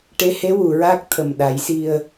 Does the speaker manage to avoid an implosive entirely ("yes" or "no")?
no